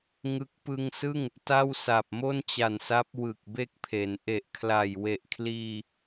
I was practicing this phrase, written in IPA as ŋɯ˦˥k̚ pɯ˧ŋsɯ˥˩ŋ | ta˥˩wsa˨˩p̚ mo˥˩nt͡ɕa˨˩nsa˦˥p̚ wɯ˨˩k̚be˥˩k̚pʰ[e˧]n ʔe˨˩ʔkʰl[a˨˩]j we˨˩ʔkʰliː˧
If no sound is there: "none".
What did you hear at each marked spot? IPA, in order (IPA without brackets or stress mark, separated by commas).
e˩˦, a˨˩